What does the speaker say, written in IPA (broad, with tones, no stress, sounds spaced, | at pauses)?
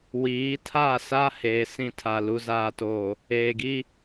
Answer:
w iː˨˦ tʰ a˦˨ s a˦ h eː˨ s ĩ˦ tʰ a˨ l u˨ z aː˨ t oː˨ | eː˨ ɡ i˦